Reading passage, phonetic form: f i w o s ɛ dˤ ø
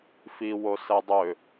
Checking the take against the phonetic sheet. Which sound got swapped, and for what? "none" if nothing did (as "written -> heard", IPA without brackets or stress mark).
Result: none